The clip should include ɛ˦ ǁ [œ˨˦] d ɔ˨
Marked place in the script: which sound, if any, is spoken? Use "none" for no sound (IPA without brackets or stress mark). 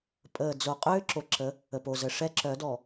œ˨˦